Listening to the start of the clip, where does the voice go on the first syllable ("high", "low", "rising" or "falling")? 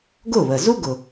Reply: falling